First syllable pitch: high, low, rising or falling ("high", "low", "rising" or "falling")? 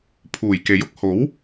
low